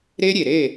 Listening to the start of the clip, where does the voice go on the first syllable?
high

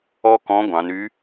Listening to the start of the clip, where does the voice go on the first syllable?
high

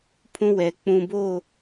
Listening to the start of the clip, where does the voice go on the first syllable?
high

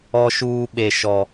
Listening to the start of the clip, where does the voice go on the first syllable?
high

